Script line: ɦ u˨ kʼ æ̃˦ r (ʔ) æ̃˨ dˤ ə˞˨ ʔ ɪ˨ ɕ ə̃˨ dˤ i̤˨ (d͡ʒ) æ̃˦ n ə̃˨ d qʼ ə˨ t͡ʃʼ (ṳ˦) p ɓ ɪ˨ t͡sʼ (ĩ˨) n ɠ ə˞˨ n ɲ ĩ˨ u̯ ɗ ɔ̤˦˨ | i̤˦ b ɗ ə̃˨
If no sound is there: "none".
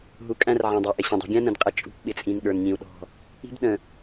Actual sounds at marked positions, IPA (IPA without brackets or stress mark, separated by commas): ʕ, ɡʲ, ṳ˦, ĩ˨